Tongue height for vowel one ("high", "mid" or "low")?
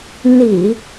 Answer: high